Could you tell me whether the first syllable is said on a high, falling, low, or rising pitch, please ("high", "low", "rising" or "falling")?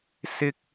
high